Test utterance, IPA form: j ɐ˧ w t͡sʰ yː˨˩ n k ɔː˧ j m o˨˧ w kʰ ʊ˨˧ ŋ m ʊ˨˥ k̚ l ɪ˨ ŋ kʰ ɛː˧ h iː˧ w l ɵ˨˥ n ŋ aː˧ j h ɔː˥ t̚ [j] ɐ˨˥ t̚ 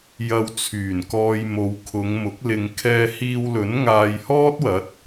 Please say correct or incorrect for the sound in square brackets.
incorrect: w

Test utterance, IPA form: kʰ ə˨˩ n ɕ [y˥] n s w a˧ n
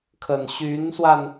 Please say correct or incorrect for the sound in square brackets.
incorrect: y˧˥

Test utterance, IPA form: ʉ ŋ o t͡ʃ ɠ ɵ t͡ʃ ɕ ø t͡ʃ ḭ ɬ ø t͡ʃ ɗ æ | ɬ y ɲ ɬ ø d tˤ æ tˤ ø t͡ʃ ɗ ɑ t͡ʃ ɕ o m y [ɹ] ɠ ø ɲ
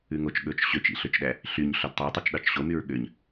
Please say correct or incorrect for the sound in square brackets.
correct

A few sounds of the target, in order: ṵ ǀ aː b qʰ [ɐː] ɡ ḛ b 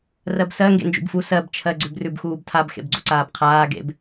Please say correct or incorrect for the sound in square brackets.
incorrect: aː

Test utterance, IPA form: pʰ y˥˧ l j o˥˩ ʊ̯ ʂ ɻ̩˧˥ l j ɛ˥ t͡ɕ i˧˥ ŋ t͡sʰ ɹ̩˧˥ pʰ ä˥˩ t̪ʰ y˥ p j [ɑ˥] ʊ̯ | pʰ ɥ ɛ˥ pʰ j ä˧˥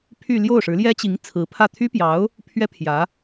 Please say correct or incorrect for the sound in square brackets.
incorrect: ɑ˧˥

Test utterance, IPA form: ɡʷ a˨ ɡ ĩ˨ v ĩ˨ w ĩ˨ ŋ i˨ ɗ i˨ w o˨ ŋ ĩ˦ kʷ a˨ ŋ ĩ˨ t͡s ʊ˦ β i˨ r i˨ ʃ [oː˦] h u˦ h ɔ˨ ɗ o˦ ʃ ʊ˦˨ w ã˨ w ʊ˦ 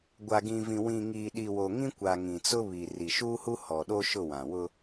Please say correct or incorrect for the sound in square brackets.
incorrect: uː˦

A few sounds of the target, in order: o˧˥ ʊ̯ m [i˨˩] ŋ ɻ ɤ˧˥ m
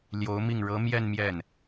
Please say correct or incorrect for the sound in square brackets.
incorrect: i˥˩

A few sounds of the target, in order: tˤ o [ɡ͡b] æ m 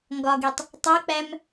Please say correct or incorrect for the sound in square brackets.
incorrect: k͡p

